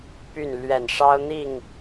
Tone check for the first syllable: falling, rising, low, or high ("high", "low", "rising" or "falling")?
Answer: falling